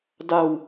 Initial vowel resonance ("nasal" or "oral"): oral